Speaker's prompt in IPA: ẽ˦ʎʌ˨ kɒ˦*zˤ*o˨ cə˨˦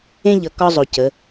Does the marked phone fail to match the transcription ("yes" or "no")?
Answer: no